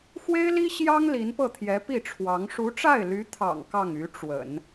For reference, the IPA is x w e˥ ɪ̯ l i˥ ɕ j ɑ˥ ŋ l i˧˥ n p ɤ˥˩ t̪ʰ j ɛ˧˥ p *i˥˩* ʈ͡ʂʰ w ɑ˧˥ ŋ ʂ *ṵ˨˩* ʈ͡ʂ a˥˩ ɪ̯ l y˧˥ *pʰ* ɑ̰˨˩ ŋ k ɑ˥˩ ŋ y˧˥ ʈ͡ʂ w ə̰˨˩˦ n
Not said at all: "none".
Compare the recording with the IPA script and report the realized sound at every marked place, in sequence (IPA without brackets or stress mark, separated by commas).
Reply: i˥˩, u˧˥, t̪ʰ